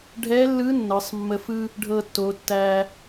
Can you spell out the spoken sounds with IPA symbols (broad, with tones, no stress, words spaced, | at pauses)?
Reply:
ɖʱɛ˧˥lːɯ˧˥ nːɤ˩˧sˤmːə˧fɯ˥ | ɖʱɤ˧tːo˩˧tːæ˧